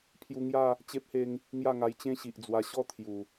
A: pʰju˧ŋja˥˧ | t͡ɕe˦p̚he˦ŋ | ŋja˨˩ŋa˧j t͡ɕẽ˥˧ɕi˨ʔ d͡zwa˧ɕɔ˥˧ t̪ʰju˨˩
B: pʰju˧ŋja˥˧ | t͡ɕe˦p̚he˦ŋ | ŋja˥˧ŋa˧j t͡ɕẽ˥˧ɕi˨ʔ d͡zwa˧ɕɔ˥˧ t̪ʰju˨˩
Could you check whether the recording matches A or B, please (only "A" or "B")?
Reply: B